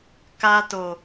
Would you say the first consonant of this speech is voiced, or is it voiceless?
voiceless